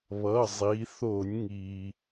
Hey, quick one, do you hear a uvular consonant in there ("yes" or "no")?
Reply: no